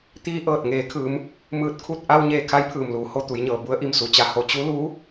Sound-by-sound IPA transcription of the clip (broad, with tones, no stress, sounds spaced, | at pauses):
t̪ iː˧ ʔ ɤː˧˩ t̚ ŋ eː˩˧ kʰ ɯː˩˧ m | m ɯː˧˩ t̚ kʰ u˥˨ t̚ ʔ a˧ w ɲ eː˧˩ kʰ a˧˥ j pʰ ɯː˩ m l uː˩˧ h o˧ t̪ u˩˧ j ɲ ɤː˩ b u˧˥ ə̯ ʔ i˧ m s u˩˧ t͡ɕ a˧ h o˧ t͡ɕ u˧˥ l uː˧˥